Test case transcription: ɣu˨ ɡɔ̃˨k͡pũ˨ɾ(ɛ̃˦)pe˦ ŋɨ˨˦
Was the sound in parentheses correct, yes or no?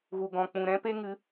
yes